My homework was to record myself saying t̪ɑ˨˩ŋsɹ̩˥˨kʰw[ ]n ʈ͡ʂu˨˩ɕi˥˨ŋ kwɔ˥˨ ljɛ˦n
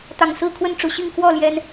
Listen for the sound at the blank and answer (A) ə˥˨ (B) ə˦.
A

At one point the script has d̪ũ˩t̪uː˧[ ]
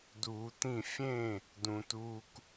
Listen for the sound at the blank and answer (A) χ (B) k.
B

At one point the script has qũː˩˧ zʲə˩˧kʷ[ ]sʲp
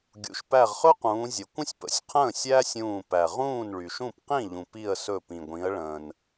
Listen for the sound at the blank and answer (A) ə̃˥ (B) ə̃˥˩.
A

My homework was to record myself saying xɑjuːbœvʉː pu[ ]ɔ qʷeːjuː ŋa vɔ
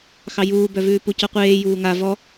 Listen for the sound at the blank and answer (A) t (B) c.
B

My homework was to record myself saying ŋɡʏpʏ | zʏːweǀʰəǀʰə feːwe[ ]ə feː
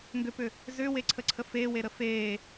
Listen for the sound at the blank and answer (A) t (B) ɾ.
B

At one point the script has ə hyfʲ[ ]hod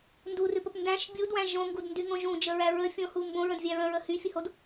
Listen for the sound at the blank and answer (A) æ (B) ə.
B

